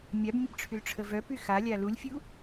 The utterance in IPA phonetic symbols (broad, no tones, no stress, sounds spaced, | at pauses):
mʲ a b mʲ ə b ʈ͡ʂʰ y l ʈ͡ʂʰ ə v œ p y x a lʲ a l u lʲ fʲ u